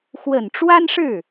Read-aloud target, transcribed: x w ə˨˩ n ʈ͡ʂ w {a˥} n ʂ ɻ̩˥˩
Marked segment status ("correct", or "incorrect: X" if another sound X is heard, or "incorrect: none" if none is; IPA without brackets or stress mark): correct